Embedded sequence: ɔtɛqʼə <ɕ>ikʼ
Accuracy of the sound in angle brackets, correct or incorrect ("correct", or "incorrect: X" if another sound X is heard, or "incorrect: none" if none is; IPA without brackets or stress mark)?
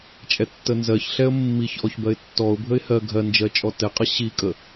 correct